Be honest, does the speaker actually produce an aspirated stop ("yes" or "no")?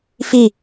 no